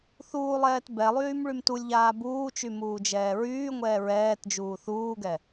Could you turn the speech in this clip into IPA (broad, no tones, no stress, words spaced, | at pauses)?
θuːlˠɛːt bɛlˠyːm ɭymtulʲʎaː buːt͡ʃy muːd͡ʒɛːɹyːŋʷɛː ɹɛːt d͡ʒuːθuːɡɛ